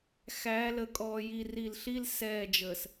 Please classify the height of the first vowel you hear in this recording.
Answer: low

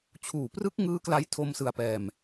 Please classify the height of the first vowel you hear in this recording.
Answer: high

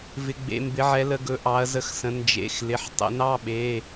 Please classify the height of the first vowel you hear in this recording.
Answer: high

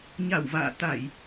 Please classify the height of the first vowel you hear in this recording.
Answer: low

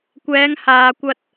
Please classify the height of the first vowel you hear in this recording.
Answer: mid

